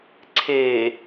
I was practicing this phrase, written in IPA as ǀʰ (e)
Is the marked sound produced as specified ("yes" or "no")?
yes